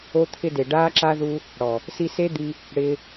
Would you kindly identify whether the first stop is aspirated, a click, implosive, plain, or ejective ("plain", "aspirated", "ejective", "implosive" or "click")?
aspirated